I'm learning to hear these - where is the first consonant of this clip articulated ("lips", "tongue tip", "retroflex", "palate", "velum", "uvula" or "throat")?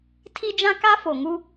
tongue tip